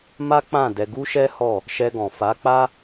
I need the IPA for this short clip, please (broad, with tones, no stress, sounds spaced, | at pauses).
m a˦ k͡p ã˦˨ d ɛ˧ ɡ u˦ ʃ ɛ˦ h ɔ˦˨ | ʃ ɛ˧ ɡ ɔ̃˨ f a˨˦ k͡p a˦